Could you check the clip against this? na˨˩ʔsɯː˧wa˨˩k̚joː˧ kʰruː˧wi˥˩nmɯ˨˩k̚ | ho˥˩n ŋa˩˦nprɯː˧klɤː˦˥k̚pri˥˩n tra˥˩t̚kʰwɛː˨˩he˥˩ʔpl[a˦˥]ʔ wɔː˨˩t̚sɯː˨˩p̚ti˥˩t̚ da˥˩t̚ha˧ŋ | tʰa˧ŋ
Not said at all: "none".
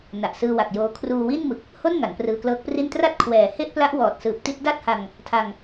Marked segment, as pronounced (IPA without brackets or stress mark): a˦˥